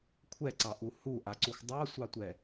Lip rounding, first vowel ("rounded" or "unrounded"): unrounded